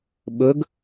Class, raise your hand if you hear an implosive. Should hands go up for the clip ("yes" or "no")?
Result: yes